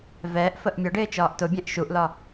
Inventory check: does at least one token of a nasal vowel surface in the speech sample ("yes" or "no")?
yes